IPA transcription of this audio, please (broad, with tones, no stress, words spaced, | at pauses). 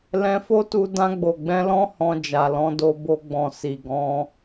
lɛ̃˧fo˦tu˧ dã˧ɡ͡bo˨ɡ͡bɛ̃˧lɔ̃˦ hɔ̃˧d͡ʒa˨lɔ̃˨˦ do˧bo˧ɡ͡bɔ̃˨ si˨ ɡɔ̃˨˦